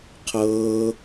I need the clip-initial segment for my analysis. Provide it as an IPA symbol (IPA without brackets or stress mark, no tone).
qʰ